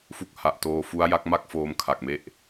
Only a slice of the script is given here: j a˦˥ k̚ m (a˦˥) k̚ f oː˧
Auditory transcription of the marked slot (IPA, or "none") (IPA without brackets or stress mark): a˥˩